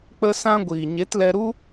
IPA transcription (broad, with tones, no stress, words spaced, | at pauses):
k͡pə˧sã˧ɡʷiː˨ ɲe˨˦tlɛ˧ɾu˦